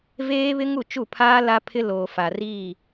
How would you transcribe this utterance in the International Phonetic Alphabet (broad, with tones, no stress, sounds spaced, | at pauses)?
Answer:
v eː˦ β ɪ˦ ŋ u˦˨ t͡ʃ u˦˨ pʰ aː˦ l a˦ pʰ ɪ˦ l oː˨ f a˨ r iː˦˨